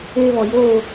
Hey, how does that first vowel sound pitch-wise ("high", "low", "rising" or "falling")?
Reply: high